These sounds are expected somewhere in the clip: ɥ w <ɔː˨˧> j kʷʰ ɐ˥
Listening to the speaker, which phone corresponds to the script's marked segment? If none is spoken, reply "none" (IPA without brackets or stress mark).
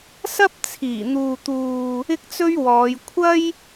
ɔː˨˧